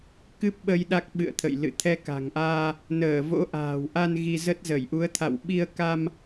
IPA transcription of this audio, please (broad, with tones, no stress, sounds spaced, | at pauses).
k ɨ˦˥ p̚ ɓ ə˧ j ɗ a˦˥ k̚ ɓ ɨ̰˧˨ ə̯ t̪ʰ ə̰˧˨ j l ɨ̰˧˨ t̪ʰ ɛ˧ k a̤˨˩ ŋ ʔ aː˧ | n əː˧˩ v o̰˧˥ ʔ a̤ː˨˩ w ʔ a˧ n ɣ i˧ z ə˦˥ t̚ z ə˧˩ j ʔ u˨˦ ə̯ t̪ʰ a̰˧˨ w ɓ i˧ ə̯ k a˧ m